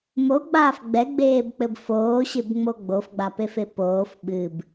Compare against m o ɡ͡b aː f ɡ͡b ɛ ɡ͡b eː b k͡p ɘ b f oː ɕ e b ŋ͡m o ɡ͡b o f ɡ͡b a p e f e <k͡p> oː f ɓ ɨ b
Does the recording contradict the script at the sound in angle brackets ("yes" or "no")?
yes